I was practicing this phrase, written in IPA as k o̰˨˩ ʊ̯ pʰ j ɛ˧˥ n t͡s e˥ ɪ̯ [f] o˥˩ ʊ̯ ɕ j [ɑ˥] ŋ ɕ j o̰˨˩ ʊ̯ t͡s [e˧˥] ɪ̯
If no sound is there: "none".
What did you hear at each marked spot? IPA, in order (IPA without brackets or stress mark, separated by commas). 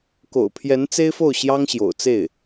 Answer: f, ɑ˥, e˥˩